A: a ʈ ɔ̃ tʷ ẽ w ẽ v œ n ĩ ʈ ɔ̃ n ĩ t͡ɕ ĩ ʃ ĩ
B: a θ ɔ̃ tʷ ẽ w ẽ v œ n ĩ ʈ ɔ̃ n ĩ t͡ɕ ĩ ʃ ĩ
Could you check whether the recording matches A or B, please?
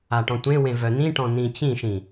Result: A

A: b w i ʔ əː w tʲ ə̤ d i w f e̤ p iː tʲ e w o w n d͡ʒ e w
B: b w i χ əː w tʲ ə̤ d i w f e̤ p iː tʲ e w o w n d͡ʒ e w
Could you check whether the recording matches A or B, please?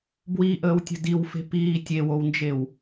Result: A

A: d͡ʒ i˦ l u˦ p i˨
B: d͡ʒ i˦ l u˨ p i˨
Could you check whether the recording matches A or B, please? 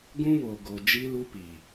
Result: A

